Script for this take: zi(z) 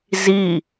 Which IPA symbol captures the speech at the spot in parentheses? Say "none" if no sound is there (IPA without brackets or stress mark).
none